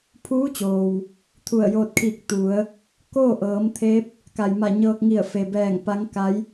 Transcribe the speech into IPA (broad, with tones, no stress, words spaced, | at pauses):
pʰuː˧˥ t͡ɕoː˩w | t̪ʰu˧˩ə̯joː˧t̚kʰiː˧˩k̚ t̪u˩˧ə̯ | koː˥˨ʔɤː˩˧m t̪ʰe˧˥p̚ | ka˩jma˧˩ ɲɤː˧k̚ŋi˧˩ə̯fe˩bɛː˧˩ŋ pa˧˥ŋka˧˥j